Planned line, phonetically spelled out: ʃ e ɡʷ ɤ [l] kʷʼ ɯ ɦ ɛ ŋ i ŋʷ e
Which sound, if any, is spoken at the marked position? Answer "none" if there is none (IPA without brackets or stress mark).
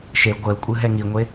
l